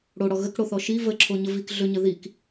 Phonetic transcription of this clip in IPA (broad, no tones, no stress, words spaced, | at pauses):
ɽoɽɔ ɣəkɽoθɔ ʃi vəǁʰoɲə vik ɮʏɲə ðik